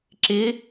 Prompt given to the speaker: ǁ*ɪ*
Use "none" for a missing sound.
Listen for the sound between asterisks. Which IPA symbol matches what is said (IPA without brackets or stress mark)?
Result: ɪ